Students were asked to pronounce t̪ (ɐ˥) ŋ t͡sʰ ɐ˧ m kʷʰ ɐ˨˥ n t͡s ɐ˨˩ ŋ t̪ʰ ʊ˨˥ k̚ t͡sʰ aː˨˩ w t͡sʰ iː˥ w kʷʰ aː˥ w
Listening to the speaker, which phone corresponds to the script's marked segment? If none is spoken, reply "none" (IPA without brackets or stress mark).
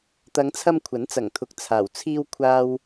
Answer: ɐ˨˧